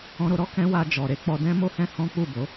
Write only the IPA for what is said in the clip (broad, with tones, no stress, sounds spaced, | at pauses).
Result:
ɔ̃˧ ɾ o˧ ɾ ɔ˦ k ɛ̃˦ w a˧ d͡ʒ ɔ˨ ɾ e˧ k͡p ɔ˧ d ɛ̃˦ m o˦ h ɛ̃˦ h ɔ̃˦ k͡p u˦˨ b o˨˦